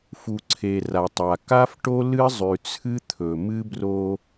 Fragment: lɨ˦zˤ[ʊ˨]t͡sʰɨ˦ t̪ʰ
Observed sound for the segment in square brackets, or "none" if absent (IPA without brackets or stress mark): ʉ˨